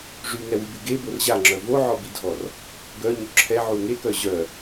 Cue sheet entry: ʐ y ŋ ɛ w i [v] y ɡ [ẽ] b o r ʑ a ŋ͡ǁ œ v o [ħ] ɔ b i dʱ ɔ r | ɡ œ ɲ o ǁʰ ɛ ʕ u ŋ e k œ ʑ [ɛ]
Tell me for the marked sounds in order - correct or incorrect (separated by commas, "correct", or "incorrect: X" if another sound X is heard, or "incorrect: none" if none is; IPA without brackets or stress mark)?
incorrect: b, incorrect: e, incorrect: ʕ, incorrect: œ